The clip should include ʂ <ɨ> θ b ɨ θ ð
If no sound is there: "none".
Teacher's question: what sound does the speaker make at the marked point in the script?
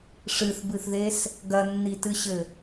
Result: ɨ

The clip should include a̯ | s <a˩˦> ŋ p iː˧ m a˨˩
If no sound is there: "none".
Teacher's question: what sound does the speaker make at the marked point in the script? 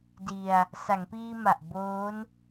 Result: a˩˦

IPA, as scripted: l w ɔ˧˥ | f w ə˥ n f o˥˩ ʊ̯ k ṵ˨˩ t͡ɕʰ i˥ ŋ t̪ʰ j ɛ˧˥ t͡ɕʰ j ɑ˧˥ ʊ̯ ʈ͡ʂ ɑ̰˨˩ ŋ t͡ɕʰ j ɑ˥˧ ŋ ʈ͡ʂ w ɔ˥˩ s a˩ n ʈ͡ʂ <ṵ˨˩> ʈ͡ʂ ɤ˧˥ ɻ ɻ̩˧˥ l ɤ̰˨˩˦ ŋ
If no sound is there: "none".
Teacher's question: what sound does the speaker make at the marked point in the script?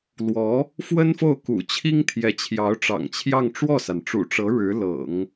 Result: ṵ˨˩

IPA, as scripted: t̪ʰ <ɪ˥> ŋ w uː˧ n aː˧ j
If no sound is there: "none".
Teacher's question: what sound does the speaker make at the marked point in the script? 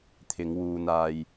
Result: ɪ˨˧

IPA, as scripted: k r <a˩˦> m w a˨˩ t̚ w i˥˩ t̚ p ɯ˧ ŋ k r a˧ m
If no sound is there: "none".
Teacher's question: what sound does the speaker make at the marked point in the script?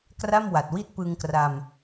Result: a˥˩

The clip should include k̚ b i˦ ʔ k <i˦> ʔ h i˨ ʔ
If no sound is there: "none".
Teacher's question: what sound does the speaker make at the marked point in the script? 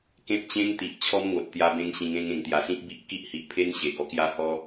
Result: i˦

